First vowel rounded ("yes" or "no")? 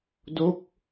yes